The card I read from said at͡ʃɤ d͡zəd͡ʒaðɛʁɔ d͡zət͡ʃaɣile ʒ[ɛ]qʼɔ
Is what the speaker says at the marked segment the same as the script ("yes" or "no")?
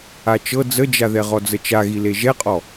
yes